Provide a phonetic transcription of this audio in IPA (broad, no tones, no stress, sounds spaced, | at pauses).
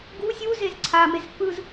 ɡ u sʲ u z e z ǀʰ a m e z f ɯ z